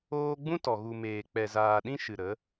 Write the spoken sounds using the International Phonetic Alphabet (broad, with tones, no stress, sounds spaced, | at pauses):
oː˧ ɡ͡b ũ˦ t ɔ˨ ɣ u˨ m eː˨ k͡p ɛ˨ z aː˨ ɗ ĩ˧ ʃ ɨ˨ ɾ ə˨˦